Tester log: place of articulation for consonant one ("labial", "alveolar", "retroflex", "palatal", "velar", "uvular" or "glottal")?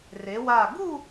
alveolar